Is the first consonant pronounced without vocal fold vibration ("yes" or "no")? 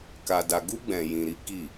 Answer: yes